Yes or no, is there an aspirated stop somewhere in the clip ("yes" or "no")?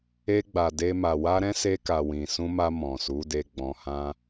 no